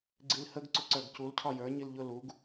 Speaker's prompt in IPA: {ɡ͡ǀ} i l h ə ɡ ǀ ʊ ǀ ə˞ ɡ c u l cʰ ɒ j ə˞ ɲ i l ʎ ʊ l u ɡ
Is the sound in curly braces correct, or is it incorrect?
correct